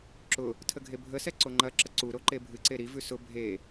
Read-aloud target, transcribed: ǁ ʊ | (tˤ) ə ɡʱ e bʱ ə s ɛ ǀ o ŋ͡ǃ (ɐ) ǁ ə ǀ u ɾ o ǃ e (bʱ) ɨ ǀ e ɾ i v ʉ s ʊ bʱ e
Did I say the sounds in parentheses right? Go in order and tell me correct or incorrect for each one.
incorrect: tʰ, correct, correct

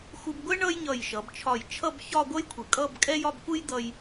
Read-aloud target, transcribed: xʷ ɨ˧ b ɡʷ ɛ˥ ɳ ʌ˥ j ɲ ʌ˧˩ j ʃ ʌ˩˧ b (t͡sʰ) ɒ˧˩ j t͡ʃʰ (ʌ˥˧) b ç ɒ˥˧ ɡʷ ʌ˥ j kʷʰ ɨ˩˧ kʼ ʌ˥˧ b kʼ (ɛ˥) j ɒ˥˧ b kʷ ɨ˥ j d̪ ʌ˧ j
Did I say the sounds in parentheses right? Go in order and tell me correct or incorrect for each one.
incorrect: t͡ʃʰ, correct, correct

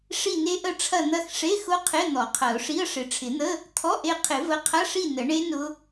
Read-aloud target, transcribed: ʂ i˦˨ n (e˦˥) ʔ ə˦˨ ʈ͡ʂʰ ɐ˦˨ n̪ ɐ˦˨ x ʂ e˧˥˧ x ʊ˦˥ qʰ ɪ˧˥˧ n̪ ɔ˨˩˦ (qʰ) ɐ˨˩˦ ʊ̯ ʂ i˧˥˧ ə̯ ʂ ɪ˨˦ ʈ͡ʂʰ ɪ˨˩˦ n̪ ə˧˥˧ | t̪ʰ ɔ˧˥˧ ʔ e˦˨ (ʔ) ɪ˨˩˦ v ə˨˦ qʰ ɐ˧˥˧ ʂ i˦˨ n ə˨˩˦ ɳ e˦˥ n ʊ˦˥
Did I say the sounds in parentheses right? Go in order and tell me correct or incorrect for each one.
correct, correct, incorrect: qʰ

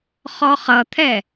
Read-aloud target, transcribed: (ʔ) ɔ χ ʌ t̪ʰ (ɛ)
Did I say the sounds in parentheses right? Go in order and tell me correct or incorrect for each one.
incorrect: χ, correct

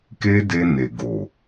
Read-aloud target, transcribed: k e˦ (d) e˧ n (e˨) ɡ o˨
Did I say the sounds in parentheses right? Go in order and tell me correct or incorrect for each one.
correct, correct

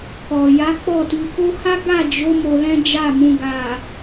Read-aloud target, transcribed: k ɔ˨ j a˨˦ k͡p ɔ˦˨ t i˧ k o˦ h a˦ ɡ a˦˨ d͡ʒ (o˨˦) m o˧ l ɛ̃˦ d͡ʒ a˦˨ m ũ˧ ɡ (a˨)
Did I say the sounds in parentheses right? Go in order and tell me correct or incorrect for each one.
correct, correct

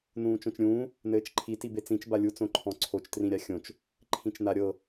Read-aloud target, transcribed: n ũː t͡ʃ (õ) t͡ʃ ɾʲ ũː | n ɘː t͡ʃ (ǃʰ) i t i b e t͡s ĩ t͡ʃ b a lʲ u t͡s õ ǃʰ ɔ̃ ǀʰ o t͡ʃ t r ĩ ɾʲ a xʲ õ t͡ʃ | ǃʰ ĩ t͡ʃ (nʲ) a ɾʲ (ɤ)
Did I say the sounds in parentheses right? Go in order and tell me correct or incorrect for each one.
correct, correct, incorrect: n, correct

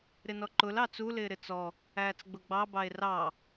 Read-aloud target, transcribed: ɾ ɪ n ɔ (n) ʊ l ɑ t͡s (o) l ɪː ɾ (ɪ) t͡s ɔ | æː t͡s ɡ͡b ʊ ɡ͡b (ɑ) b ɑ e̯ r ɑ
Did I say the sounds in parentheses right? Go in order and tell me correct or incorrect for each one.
incorrect: ǃ, incorrect: u, correct, correct

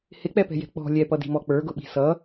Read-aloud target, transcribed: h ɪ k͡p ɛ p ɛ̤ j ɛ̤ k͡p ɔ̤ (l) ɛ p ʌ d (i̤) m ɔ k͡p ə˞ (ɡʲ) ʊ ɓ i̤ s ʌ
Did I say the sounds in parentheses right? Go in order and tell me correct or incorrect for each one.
incorrect: lʲ, correct, incorrect: ɡ

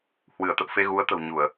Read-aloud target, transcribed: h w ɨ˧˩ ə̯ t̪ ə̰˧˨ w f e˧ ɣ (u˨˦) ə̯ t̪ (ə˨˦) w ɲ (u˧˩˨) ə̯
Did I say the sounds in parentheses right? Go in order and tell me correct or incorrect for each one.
correct, incorrect: ə̤˨˩, correct

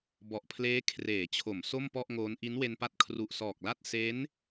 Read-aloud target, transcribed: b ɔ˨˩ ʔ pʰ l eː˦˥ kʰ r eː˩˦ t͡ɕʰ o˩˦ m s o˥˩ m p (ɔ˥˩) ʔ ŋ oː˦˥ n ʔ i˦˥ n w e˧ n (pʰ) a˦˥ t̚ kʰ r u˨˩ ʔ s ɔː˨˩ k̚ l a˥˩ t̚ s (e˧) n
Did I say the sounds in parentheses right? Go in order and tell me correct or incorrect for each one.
correct, incorrect: p, incorrect: e˦˥

